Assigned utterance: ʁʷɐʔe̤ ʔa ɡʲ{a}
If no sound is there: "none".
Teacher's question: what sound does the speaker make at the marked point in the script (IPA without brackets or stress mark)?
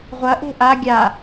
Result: a